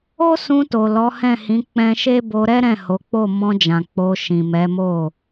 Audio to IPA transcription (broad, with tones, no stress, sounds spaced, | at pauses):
o˦ s ũ˧ t o˨ l ɔ˨˦ h ɛ̃˦˨ h ĩ˨˦ k͡p ɛ̃˧ ʃ e˦ b o˧ ɾ ɛ˦ ɾ ɛ̃˦˨ h o˨˦ k͡p o˦˨ m ɔ̃˧ d͡ʒ ã˨ k͡p o˧ ʃ ĩ˨ m ɛ˨˦ m o˦˨